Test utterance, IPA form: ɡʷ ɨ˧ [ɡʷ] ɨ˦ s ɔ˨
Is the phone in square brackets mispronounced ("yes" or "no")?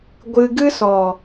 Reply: yes